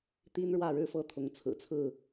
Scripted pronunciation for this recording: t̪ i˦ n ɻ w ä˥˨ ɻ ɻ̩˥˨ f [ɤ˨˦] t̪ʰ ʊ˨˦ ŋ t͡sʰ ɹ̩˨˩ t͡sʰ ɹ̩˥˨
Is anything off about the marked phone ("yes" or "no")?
yes